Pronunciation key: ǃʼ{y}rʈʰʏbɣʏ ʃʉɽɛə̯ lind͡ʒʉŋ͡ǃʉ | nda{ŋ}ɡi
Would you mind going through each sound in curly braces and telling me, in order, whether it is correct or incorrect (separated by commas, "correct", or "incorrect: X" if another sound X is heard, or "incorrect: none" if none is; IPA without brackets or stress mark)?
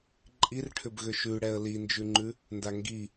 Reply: incorrect: i, correct